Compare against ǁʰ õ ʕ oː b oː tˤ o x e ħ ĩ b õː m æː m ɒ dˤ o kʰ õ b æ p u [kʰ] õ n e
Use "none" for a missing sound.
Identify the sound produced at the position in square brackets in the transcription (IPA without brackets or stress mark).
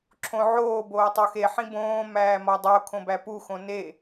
x